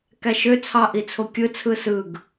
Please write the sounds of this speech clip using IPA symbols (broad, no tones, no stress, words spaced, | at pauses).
kæʃøt͡sʰɑʔi t͡sʰokʲɯt͡sʰɯ sɯɡ